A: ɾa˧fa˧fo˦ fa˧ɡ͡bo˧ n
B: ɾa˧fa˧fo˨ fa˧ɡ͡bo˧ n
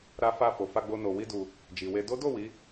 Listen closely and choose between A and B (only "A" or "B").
B